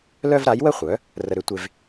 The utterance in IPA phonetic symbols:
lœ˥vɾa˩˥j wə˥χʷœ˩˥ | rə˧ɾʏ˩˥ tʷe˧v

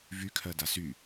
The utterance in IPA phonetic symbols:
vykʰɜ dasy

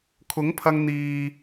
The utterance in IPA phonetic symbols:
kʰʊ˨˥ŋpʰɐ˧ŋ n̪iː˨

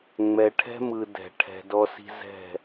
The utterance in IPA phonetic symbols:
ŋ͡mɛ˨ʈʰɛ̤˦mɯ˨ dɛ̤˨ ʈʰɛ̤˨dɔ˧si̤˧zɛ̤˦˨

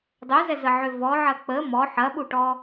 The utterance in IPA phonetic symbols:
dˤøzɛzəʕø vɔʕɐ k͡pə mɔ ħɐɓuʈɔ

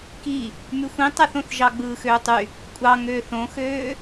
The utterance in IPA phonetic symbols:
ki | myxʷĩtˤæθõθ ʒɑɡ͡bɯːxøːtˤy | kʷʼɑŋøːθ õxøː

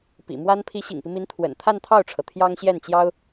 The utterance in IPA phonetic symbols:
pḭ˨˩mwa˥n pʰi˧˥ɕḭ˨˩ŋpi˦mi˧˥n t̪ʰwə̰˨˩n t̪ʰa˥˧nt̪ʰɑ˥˩ʊ̯ʈ͡ʂʰɤ˩ t̪ʰjɑ˥ŋɕjɛ˥˩nt͡ɕjɑ˥ʊ̯

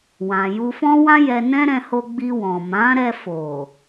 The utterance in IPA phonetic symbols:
wã˨ju˧fɔ̃˦wã˦ jɛ˧nɛ̃˦ɾɛ̃˧ho˧ ɡ͡bi˧wɔ̃˨mã˨˦ ɾɛ˧ fo˨

